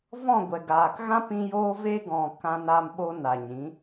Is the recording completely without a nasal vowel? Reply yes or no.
no